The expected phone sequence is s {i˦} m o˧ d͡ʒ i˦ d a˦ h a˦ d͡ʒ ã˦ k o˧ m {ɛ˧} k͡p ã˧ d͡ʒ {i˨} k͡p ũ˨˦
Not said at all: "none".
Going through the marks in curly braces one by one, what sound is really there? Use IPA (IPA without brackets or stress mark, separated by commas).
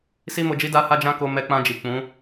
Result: i˦, ɛ˧, i˨